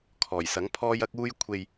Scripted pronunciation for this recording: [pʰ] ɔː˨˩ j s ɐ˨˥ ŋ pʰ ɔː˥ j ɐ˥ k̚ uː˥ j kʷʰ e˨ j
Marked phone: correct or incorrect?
incorrect